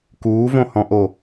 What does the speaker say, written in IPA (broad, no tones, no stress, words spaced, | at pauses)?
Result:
kuːvõhɔ̃ʔo